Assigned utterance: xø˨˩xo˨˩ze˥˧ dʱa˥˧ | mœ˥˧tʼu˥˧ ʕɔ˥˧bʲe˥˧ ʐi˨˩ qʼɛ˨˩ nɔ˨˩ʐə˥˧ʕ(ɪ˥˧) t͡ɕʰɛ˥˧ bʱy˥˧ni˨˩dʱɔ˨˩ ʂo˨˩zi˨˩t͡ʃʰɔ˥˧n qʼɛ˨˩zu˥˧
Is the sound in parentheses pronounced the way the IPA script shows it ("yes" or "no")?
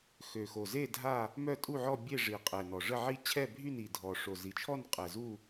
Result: no